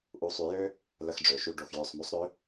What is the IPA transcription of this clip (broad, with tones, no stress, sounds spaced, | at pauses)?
ʔ u˨˥ sˤ y˨˩˦ j ø˥ | l ə˧˥˧ x ɖ͡ʐ ø˩ ʃ y˧˥˧ ɖ o˧˩ x j ø˧˩ sˤ m y˨˥ sˤ ɾ ø˨˥